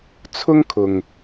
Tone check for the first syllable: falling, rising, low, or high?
high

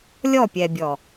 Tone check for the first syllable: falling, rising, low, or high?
falling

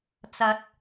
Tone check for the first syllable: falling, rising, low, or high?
rising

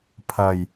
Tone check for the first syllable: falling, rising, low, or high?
low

